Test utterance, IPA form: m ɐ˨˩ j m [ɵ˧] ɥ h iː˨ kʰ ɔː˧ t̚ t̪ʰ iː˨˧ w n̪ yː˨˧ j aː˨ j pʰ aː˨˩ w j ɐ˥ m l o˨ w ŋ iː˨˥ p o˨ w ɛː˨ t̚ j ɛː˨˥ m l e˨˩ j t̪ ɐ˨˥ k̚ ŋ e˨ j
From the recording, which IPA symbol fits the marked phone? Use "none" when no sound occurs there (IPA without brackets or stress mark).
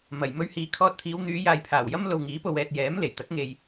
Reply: ɵ˧